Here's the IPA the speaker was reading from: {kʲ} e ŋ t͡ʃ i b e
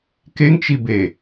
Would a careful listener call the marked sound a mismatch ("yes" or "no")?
yes